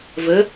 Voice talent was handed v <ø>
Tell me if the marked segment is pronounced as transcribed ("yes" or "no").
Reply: no